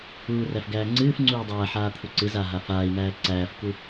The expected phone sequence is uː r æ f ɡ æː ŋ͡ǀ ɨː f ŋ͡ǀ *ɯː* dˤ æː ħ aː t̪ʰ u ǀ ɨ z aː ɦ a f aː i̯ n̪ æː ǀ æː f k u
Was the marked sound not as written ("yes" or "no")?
yes